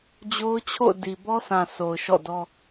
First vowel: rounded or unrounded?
rounded